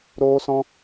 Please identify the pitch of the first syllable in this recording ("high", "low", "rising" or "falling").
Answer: high